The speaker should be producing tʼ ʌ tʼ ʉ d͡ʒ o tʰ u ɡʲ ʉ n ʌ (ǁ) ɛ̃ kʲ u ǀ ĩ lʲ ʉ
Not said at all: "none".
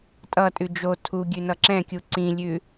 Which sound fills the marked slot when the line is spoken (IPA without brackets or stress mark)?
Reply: ǁ